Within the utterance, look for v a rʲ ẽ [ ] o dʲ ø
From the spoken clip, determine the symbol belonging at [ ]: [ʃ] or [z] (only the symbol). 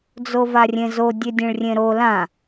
z